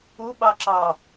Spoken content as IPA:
u ɓ ɑ ǁ ɑ

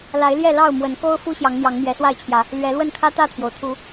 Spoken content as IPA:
l a˨˦ ɪ̯ l j ɛ˥˨ l ɑ˥˨ ʊ̯ m w ə˨˦ n k o˦ ʊ̯ f u˦ ɕ j ɑ˨˦ ŋ n̪ j ɑ˨˦ ŋ m j ɛ˨˦ s w a˥˨ ɪ̯ t͡ɕʰ j ä˨˦ | l ɥ ɛ˨˦ l w ə˥˨ n kʰ ä˦ t̪ ä˥˨ t̪ʰ j o˩ ʊ̯ t̪ʰ u˨˦

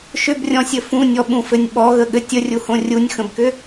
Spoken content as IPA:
ʃ ʏ b rʲ ɔ̃ sʲ ɘ f ũ nʲ ɔ ɓ ũ f ɘ nʲ ɓ ɔ ɣ ə ɠ ɘ tʲ ə rʲ u h õ rʲ u nʲ x ə̃ b k ʏ

